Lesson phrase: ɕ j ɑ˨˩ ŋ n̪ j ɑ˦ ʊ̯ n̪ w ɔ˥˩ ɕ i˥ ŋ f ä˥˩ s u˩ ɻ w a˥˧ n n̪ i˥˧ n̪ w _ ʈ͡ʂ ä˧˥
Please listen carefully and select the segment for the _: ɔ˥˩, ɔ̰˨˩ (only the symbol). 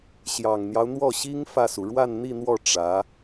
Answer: ɔ˥˩